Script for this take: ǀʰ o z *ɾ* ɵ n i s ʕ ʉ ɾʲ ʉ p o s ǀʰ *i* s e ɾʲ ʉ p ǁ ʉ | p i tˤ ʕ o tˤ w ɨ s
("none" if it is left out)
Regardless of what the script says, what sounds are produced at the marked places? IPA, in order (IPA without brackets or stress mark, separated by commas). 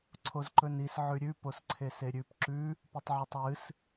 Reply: ǃ, e